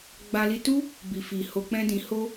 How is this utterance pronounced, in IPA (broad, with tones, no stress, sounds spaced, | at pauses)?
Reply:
ɡ͡b a˧ l i˧ t u˦ | b i˨ f i˨ h o˧ k͡p ɛ̃˦ d ĩ˧ h o˦